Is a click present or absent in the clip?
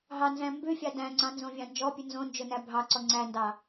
present